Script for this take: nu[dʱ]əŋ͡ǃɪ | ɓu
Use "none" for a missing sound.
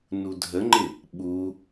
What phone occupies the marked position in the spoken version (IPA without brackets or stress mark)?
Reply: dʱ